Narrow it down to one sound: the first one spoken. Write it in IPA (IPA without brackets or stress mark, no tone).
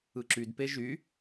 ɯ